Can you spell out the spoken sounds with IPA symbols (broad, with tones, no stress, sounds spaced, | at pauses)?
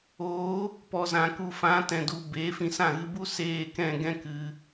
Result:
oː˨˦ | p ɔ˨ z ã˨ k u˨ f ã˨˦ t ɛ̃˨ d u˨ b eː˨˦ f ĩ˧ s ã˦˨ ɣ ɨ˧ b u˦ s eː˦˨ k ɛ̃˦˨ ɡ ɛ̃˦ k ɨ˧